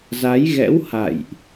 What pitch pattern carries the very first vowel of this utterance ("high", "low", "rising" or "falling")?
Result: rising